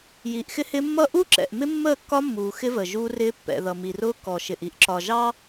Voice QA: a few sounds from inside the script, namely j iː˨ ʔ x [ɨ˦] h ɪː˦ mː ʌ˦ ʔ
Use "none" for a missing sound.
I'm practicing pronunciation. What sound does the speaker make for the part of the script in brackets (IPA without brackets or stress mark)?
ɪ˦